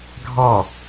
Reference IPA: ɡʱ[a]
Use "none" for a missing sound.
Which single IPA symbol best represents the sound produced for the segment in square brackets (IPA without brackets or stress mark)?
ɑ